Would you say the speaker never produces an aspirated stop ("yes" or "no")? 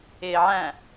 yes